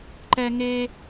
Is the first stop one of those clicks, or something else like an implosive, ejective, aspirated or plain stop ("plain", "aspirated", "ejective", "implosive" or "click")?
click